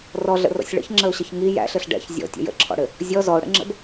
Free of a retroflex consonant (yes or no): no